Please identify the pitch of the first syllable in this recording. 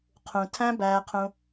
low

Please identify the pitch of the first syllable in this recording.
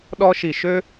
high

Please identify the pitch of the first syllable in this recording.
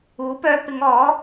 rising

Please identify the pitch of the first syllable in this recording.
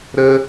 high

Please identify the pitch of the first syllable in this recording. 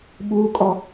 high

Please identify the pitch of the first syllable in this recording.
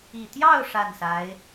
falling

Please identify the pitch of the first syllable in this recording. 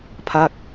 falling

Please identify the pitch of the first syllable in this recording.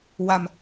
low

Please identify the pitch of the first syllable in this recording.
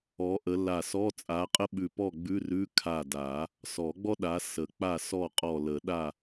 rising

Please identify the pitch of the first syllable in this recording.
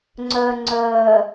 low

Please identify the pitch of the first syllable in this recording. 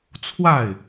falling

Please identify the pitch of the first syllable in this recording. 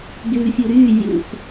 low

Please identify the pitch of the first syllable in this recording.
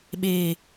low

